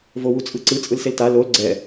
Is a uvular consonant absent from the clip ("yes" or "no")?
yes